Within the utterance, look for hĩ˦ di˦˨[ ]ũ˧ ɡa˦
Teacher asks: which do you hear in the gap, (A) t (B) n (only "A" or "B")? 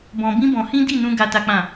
B